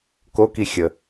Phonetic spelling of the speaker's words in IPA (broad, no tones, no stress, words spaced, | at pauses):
koki xʲə